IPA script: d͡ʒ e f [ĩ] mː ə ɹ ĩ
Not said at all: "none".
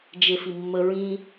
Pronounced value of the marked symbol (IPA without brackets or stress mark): i